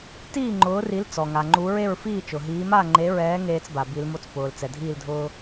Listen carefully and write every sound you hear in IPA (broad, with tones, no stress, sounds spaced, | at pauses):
t iː˥˨ ŋ͡ǃ ʊː˨˥ r i˨˥ l t͡s ɔ˩ ŋ a˩ ŋ͡ǃ u˨˥ ɹ e˥˨ ɹ f iː˥˨ t͡ʃ ʊ˩ ɦ iː˨˥ m a˥˨ ŋ͡ǃ e˨˥ ɹ ɛː˨˥ ŋ eː˥ t͡s b a˩ b i˨˥ l m o˥ t͡s p ʊː˩ l t͡s ɛ˩ dʱ iː˥˨ l dʱ ʊː˥